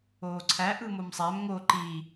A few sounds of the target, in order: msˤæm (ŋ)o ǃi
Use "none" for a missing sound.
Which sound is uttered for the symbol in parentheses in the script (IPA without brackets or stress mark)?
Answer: ŋ